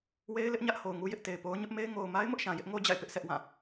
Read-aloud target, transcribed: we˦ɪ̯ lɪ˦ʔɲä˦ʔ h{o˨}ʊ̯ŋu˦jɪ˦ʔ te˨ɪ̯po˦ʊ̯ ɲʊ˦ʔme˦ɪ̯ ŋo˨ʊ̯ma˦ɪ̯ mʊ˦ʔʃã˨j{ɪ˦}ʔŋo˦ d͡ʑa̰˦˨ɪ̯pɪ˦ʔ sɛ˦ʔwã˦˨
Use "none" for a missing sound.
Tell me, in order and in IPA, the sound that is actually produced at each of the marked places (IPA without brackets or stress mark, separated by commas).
o˨, ɪ˦